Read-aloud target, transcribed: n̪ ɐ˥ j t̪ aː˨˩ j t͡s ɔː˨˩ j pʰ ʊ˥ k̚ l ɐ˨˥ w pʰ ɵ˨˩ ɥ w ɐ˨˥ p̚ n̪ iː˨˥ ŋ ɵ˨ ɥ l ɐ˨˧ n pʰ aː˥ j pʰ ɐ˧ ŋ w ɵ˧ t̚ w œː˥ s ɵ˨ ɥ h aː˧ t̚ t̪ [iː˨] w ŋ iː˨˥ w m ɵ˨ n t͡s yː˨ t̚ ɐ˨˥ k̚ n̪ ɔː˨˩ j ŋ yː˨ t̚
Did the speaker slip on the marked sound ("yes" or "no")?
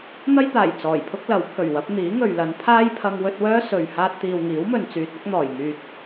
no